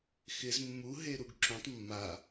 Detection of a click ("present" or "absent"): present